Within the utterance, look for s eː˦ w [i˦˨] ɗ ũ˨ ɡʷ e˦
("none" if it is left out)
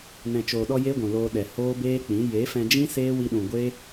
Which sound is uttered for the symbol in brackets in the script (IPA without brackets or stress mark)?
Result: i˧